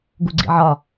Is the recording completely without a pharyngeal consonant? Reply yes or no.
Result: no